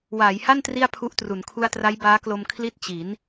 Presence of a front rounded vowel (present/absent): absent